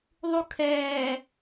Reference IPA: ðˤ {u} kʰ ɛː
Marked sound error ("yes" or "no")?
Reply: no